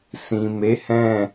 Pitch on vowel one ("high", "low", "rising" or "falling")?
low